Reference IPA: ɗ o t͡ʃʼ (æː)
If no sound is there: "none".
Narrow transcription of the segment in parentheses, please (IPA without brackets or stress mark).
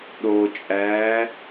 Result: æː